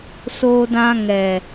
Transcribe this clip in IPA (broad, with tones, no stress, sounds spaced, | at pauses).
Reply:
s oː˦ d ã˦ ŋ ɛ˨